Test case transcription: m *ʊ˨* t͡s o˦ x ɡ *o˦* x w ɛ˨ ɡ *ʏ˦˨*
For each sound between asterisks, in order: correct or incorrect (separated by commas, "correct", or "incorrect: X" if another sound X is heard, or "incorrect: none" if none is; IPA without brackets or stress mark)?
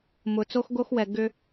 correct, correct, incorrect: ʏ˦